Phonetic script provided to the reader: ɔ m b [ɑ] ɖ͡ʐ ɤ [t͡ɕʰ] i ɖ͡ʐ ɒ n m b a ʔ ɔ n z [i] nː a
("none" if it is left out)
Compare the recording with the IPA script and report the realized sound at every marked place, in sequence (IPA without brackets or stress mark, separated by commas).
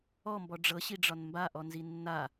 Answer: ɔ, ɕ, i